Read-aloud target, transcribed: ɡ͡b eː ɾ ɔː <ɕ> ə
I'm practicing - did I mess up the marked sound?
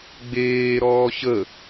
no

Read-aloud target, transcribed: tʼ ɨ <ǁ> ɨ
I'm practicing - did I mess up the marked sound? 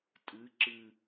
no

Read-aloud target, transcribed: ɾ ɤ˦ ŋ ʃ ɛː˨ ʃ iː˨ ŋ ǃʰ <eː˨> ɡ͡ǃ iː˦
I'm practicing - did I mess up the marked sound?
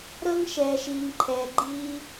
yes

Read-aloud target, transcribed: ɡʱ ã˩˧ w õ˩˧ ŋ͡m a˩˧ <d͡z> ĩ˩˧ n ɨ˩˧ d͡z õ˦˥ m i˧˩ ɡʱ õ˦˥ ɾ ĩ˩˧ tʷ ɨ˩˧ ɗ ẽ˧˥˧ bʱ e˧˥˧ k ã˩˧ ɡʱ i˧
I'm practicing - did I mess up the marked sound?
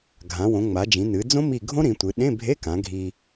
yes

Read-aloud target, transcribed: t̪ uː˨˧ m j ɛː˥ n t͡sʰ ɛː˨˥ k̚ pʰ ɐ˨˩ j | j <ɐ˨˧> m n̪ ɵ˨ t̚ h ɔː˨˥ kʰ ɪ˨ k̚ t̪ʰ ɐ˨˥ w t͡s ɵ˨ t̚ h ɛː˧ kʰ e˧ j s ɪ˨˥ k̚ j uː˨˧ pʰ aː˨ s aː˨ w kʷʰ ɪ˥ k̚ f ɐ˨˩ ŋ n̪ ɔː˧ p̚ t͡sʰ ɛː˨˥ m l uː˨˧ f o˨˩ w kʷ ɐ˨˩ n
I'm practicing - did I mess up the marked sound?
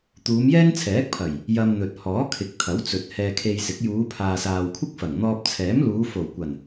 yes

